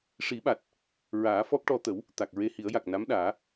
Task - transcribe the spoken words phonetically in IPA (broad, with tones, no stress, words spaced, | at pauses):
ʂi˨˩˦ɓa˨˩t̚ | ɹaː˨˩˦ fɔ˦˥k̚ʈɔ˧ t̪ə˨˩˦w | t̪a˨˩k̚ ɹe˧hi˨˩˦ə̯ja˨˩k̚ na˧˥mɗaː˨˩˦